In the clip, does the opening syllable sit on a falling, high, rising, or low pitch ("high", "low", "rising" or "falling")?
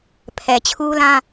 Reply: low